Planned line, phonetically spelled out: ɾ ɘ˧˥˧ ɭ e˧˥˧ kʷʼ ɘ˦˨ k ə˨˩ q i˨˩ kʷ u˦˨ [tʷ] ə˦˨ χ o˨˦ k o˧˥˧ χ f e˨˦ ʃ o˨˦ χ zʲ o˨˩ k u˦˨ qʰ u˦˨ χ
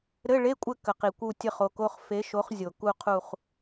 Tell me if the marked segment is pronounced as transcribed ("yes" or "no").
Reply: no